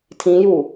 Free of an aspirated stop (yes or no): no